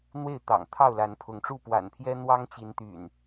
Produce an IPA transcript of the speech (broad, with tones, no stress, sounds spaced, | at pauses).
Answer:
n̪ w e˥˨ ɪ̯ t̪ ɑ̰˨˩ ŋ t̪ʰ ɑ˥˨ ʊ̯ l a˨˦ n pʰ ʊ˨˦ ŋ ʈ͡ʂ u˥˨ p w a̰˨˩ n pʰ j ɛ˦ n̪ w ɑ˦ ŋ t͡ɕ i˨˦ n t̪ y̰˨˩ n